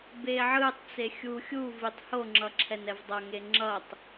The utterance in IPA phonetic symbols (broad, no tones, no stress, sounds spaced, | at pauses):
b e ʕ ɯ tˤ t͡s e xʲ u xʲ u v i tˤ h o ŋ͡ǁ ʌ ǁʰ ɛ n ɛ v dˤ ʌ ŋ e ŋ͡ǁ ʌ tˤ